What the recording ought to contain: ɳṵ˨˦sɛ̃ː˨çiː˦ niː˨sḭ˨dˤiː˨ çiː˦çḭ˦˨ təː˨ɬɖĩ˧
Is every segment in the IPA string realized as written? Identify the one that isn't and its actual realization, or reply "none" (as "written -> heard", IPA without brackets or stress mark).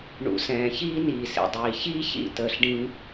none